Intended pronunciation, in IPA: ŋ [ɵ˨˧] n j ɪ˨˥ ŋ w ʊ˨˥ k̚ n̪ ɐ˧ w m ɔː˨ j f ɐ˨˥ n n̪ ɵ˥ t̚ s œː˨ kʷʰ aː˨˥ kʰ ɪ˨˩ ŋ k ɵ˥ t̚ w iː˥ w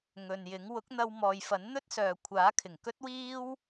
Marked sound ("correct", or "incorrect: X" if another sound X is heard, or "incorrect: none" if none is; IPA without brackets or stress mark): incorrect: ɵ˨